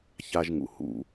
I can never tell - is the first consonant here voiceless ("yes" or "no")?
yes